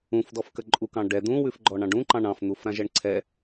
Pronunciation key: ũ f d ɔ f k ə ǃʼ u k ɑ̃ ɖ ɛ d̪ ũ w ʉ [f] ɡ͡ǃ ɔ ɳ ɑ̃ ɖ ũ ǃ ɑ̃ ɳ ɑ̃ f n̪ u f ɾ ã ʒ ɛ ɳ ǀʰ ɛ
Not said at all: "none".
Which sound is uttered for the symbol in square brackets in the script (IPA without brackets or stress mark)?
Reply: f